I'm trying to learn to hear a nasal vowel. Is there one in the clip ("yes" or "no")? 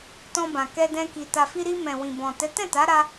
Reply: yes